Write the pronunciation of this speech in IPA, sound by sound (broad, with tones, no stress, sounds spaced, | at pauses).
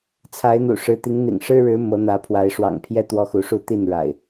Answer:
t͡sʰ a˨˦ ɪ̯ n̪ ṵ˨˩ ʂ ɻ̩˨˦ t̪ i˨˦ ŋ n̪ ḭ˨˩ ŋ ʂ ɻ̩˦ ɻ ɻ̩˨˦ m ɤ˨˦ n̪ ä˨˦ pʰ w a˨˦ ɪ̯ ʂ w ɑ̰˨˩ ŋ pʰ j ɛ˦ t̪ w ɔ˦ x u˨˦ ʂ u˥˨ t̪ i˥˨ n ɻ a̰˨˩ ɪ̯